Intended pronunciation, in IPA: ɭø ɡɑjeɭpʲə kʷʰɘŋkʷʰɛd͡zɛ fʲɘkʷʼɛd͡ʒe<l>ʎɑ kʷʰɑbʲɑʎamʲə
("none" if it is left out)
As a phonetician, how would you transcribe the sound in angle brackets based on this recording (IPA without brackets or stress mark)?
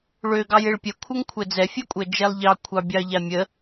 lˠ